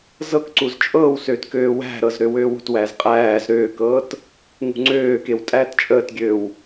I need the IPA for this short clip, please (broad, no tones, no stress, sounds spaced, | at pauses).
z ɤ k ǀ u z t͡ʃʼ ɤː w s øː t k øː w æ̤ ɾ ɤ z ɾ ø w øː w ṳ t w æː z qʼ æː z ɾ øː k ɤː t | ŋ ṳ ŋ͡ǀ øː k e w tʼ æː t t͡ʃʼ əː t ɡʲ øː w